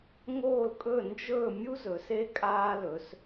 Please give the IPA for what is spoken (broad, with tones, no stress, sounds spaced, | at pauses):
ŋ oː˥˩ l kʼ ɵ˥˩ n d͡ʒ ɵː˥˩ mʲ u˥ z ɵ˩˧ s e˥ kʼ aː˥ l ɵ˩˧ s